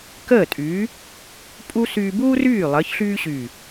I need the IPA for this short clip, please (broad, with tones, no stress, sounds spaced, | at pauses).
k əː˥˩ tʼ y˨˥ | pʼ u˥ s yː˧ b uː˥ r yː˥˩ lˠ əː˨˥ ç ɬ yː˥ ɕ y˧˩